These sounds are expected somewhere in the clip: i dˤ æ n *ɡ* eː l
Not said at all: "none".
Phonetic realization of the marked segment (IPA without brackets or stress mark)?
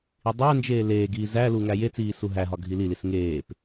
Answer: d͡ʒ